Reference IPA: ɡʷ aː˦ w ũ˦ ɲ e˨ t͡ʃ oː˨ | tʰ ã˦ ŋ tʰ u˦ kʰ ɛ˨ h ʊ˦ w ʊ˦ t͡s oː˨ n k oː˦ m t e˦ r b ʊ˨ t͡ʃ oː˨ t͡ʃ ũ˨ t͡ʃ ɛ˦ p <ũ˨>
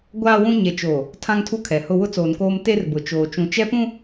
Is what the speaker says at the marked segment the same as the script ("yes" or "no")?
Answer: no